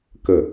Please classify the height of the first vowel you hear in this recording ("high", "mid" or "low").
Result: mid